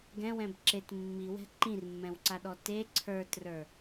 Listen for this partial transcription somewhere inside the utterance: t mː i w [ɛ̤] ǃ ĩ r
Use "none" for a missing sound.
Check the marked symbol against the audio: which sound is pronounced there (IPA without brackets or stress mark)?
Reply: ɛ̤